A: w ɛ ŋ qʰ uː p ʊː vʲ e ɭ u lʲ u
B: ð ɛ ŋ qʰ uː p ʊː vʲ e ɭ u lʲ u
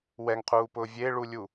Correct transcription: A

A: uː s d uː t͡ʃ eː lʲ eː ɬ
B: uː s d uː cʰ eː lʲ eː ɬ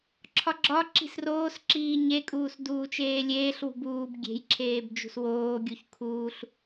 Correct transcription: A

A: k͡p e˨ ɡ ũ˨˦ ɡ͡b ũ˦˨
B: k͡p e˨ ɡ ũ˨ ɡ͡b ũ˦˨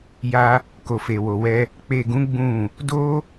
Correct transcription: A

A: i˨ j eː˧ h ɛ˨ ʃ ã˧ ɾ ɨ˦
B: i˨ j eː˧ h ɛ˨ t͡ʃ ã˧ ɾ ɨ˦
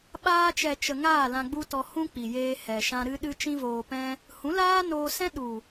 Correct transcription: A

